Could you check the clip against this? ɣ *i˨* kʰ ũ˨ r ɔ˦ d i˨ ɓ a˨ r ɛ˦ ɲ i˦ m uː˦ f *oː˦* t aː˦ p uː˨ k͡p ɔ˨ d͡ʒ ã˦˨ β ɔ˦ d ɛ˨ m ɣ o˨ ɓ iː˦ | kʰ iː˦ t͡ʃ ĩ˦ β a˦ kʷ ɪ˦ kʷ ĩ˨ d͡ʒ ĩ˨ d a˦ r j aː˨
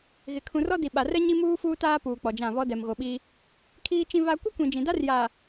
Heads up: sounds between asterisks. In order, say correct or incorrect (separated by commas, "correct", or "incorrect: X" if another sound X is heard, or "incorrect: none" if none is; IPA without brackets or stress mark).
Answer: incorrect: ɪ˨, incorrect: uː˦